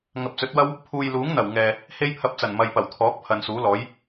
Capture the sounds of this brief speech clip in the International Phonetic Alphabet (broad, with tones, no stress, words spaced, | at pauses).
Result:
ŋɐ˨p̚t͡sɵ˨˥t̚wɐ˥w | pʰuː˨jluː˨˥ŋn̪ɐ˨˩w ŋɛː˨ | he˥jpʰɐ˧p̚t͡sɐ˨˩n mɐ˨jpɐ˨˩wt̪ʰɔː˨˥k̚ pʰɐ˨˧nsuː˨˥lɔː˨˥j